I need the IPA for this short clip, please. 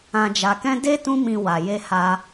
ã˨ d͡ʒ a˨ k ɛ̃˧ d e˦ t ũ˧ m ĩ˨ w a˨ j e˧ h a˧

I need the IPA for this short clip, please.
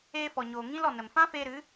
eː˧ f ɔ˨ ɲ oː˨ ŋ ĩ˦ l ɔ˨ n ə˨ m f ã˦ f eː˧ ɾ ɨ˨˦

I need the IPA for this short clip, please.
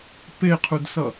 p e qʰ u d s ʌ

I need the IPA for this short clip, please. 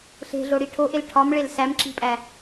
ɬ e̤ ɮ o ɽ i ʈʰ o ʔ e l ʈʰ ɒ m ɭ e l s æ m ǁ i̤ pʼ æ

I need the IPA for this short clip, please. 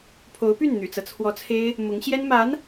pʰ o˧˥ ʊ̯ p y˥˩ n n̪ y̰˨˩ t͡s ɤ˦ t͡sʰ w ɔ˧˥ t͡sʰ e˥ ɪ̯ | m ʊ˧˥ ŋ ɕ j ɛ˥ n m a˧˥ n

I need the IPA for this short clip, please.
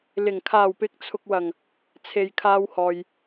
l ɪ˨˩ ŋ kʰ aː˨˩ w p ɪ˨˥ k̚ t͡sʰ ʊ˨ k̚ w ɐ˨˩ ŋ | t͡sʰ e˨ j kʰ aː˧ w h ɔː˨ j

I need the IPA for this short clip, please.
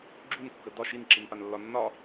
ɡ͡ǁ u n kː ə d ɒ ʃ i n ǁ i n p a n lː ɒ nː ɒ

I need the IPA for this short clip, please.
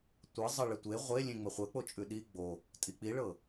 tʷ ɤ zˤ ɤ ɭ ɘ tʷ e ʁʷ e lʲ ẽ ŋ͡m ə χʷ ə k͡p o t͡ʃʼ ʉ ɗ i ɡ͡b o | tʼ i k͡p i ɭ ɤ

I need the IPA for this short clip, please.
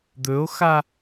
d̪ ɵ o̯ x a

